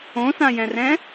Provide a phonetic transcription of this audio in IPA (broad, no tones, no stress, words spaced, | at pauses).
õsãjɛ̃rɛ̃